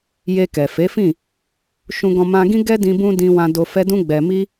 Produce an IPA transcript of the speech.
j e˧ k ɛ˨ f e˨˦ f ĩ˦˨ | ʃ ũ˧ ɡ ɔ̃˧ m ã˧ ɡ ĩ˦ ɡ ɛ˦ d ĩ˧ b ũ˧ d ĩ˧ w ã˧ d o˧ f ɛ˦ d ũ˧ ɡ͡b ɛ˨ m i˧

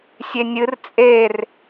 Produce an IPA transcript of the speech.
sʲ e nʲ ɨ r t͡sʼ e r

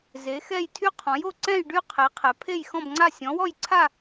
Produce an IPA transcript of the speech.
z e˨˥ x ɛ˥˧ j tʰ y˥˧ qʰ ɔ̃˨˥ j o˥˧ ǀ ɛ̃˥˧ j ɖ y˥˧ qʰ e˨˥ qʰ ɛ˨˥ pʰ e˥˧ j x ɔ̃˥˧ b ŋ͡ǀ a˥˧ sʲ ɔ̃˨˥ w ɔ˥˧ j ǀʰ a˥˧

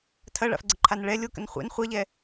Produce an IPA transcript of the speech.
tʰ ɐ ɭ a̰ f ɡ͡ǀ ə ǃʰ a n ɭ ɛ lʲ o k ə̰ n χʷ ḛ n χʷ a ʎ ɛ

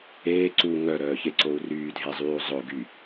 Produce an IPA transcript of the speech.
eː ǀ u ŋ œ ɾ œː ç e ǀ o u̯ r yː dʱ e zˤ yː u̯ zˤ ʊ ɡ y

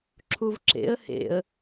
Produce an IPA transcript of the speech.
ǁʰ u v ǁ ḛ ə̯ h ḛ ə̯

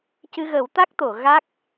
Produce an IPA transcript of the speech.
c ɨ˧ ɣ ə˨˩˦ w t̪ a˦˥ k̚ t̪ o˨˩˨ ɣ a˦˥ k̚

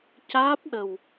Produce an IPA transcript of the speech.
c aː˦˥ p̚ ɗ ə˨˩ w

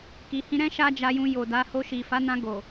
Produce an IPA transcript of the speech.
k i˨ h ĩ˧ ɾ ɛ̃˦ ʃ a˦ d͡ʒ a˧ j ũ˧ j o˨ d a˨˦ h o˧ ʃ i˨ f a˨˦ n ã˧ ɡ o˨

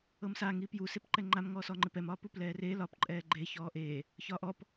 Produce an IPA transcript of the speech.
ɤ m s a ŋ i p j u s e p ǃ ɛ ŋ͡ǃ a m ŋ ɔː s ɔ ŋ͡ǃ ɪ p ɛ m ɒː p u p l ɛː r e l ɒ p ǃʼ ɛː ɡ͡ǃ e ç ɔː ʔ e | ç ɒː ʔ ɔ p

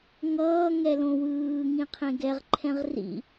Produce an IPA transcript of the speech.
ŋ ʌː ŋ ɛ l õ w ɯː ŋ ĩ qʰ ẽ ɡ ɛ ʁ ǃʰ ɛ̃ ʁ r ḭ

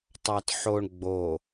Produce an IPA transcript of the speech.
tˤ ɑ t ħ o ɳ ɡ͡b o

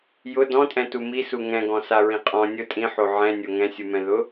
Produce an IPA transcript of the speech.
j ʊ d ɔ̃ tʼ ɛ̃ t u m i s u ŋ ɛ̃ ɡ ɔ̃ s a ɹ ĩ qʼ ɔ̃ nʲ ʊ tʼ ĩ ħ o ʕ ɛ̃ nʲ o ŋ ɛ̃ sʲ u m ɛ̃ ð ʊ

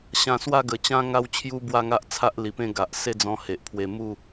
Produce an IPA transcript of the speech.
ɕ ã˧ s w a˥˧ ɡ ə˨˩ t͡ɕ ã˦ ŋ a˦ w t͡ɕʰ j u˦ b w a˥˧ ŋ a˦ ʔ t͡sʰ a˦ ʔ l i˨˩ p ẽ˥˧ ɡ a˨ ʔ s e˥˧ d͡z ɔ̃˧ h e˨ ʔ pʰ w e˧ m u˥˧

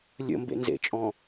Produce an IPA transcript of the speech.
lʲ ə̰ m b ḛ n z ḛ t͡ʃʼ ɔ̃

